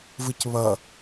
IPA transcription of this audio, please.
vɯcβʌ

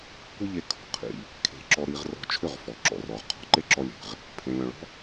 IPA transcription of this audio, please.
kʷɯ˦ʎe˧ kʰɔ̤˨qʰḭ˧ | kʰe̤˧ǁɔ˧ ɾi˧ʁ rɔ̤˧t͡ʃʰʏ˦˨ʁ fɔ˨ǁɔ̰˨rɔ˨ʁ qʰɔ̤˨ǃe˦ǁɔ˧lʲe̤˨ʁ | pʰẽ˨lʲɔ̃˨ɭɔ̤˦

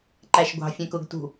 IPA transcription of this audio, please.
ǃæʃɡʷɑ̤ fʲɛ̃kʊɡ tṳ

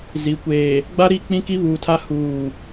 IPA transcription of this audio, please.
zi˨ kʷeː˨ | ɡ͡ba˦ɾi˦˨ k͡pĩ˦ki˦βuː˨tʰa˦ huː˦˨

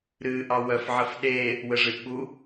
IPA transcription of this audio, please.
ɾɨʔɑ wœf ʕəfɗe | wəʐɨʔɓu

